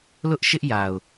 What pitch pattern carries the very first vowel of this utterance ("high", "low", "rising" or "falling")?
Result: high